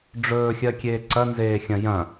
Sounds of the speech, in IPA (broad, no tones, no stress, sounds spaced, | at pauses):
ɖ͡ʐ ɵː xʲ ɜ kʲ eː ǀ ɐ n z eː xʲ ɐ̃ j ɐ̃